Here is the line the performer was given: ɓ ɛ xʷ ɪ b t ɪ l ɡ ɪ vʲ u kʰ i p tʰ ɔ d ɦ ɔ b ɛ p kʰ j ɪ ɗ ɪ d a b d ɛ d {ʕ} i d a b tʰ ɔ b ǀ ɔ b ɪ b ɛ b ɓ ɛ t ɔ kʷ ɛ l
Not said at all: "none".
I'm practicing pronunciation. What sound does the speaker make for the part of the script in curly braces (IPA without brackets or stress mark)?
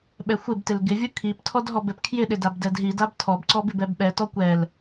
ɦ